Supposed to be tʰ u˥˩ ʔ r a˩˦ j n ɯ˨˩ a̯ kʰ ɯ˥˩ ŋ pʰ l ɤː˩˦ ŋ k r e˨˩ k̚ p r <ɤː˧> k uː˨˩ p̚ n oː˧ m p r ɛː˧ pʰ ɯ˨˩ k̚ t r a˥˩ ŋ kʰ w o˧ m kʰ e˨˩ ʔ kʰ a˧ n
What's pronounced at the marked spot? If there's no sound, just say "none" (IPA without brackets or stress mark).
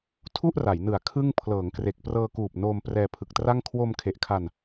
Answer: ɤː˧